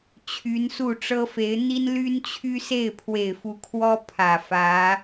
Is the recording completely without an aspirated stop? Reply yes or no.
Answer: no